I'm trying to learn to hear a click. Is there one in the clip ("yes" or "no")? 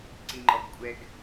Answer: yes